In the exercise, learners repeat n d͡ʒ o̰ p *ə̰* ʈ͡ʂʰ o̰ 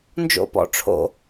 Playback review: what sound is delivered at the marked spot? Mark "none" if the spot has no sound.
ɔ̰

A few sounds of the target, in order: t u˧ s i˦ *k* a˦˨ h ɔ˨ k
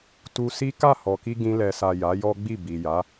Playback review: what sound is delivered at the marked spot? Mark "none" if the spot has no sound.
k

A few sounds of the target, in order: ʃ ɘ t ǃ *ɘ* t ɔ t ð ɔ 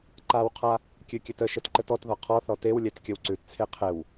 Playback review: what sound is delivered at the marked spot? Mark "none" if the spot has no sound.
ɘ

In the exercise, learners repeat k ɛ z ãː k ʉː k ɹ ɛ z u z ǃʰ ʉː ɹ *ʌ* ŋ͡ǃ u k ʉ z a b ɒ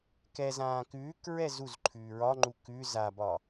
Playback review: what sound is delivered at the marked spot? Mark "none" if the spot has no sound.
ɒ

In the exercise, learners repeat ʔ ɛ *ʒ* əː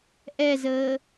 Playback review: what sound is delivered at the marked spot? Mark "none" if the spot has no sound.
z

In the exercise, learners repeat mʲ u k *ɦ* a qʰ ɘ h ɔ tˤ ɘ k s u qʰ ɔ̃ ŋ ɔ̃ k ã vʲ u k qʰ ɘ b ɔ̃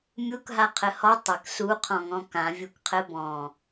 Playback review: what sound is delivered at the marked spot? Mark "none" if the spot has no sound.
ɦ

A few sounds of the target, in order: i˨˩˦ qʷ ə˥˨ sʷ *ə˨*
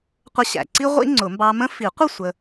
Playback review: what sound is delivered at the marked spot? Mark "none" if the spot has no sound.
ə˦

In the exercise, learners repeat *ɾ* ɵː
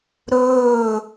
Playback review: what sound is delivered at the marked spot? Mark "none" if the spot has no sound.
ɾ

